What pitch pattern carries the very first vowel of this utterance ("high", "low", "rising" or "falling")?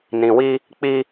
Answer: low